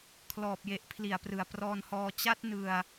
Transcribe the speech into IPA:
kʰlɔː˨˩p̚je˨˩ʔ pʰli˨˩a̯prɯ˨˩a̯ prɔː˧nhɔː˧ t͡ɕa˦˥t̚nɯ˧a̯

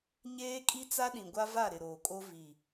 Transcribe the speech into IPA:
ɲeː˦kʼi˦ t͡sa˦ɗĩ˨ ɡʷa˦va˦˨ ɾɪ˨ɾoː˨kʼo˦ vi˨

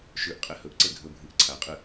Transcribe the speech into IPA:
ʃʉʔ qʼehɵʔǀe ɡʱɵbʱɨʔ ǀʰaqʼɨ

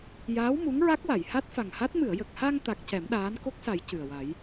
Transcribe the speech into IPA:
jaː˧˥w mu˧˥ŋɹa˦˥k̚wa˨˩˨j ha˦˥t̚fa˨˩ŋha˦˥t̚ mɨ˨˩˨ə̯jə˨˩k̚ha˧ŋ t̪a˦˥k̚ cɛ˨˩˦mɗaː˧˥n ko˦˥k̚sa˨˩˦j cɨ˨˩ə̯wa˨˩˦j

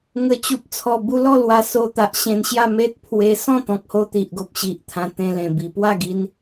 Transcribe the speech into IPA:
ŋə˨˩t͡ɕu˨p̚t͡sʰɔ˨˩ bu˧lɔ˥˧ lwa˧so˧t̪a˨ʔ ɕẽ˧nɕja˥˧ me˦t̚ pʰwe˧ sɔ̃˥˧t̪ɔ̃˨k̚ho˧ t̪i˨ʔɡo˨p̚ɕi˨ʔt̪ʰã˧ t̪ẽ˧lẽ˨˩ bi˨˩pwa˥˧ɡi˧n

